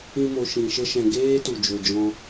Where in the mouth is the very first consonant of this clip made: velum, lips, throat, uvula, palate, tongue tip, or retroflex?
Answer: lips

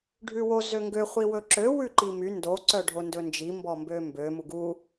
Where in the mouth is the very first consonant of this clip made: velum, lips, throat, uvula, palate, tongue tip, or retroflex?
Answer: retroflex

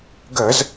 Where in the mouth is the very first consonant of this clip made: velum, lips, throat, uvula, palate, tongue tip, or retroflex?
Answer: velum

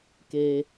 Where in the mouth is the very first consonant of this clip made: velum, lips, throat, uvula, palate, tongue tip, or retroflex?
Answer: velum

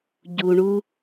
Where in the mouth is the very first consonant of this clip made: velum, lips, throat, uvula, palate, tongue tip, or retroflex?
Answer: palate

